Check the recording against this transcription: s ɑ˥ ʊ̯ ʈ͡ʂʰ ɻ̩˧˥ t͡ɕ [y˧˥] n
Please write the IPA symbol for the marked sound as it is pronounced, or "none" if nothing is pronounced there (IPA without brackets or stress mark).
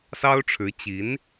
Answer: i˧˥